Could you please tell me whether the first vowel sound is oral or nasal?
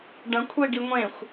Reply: nasal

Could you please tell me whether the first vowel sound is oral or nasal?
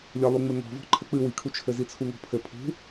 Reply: oral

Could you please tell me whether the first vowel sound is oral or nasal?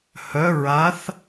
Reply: oral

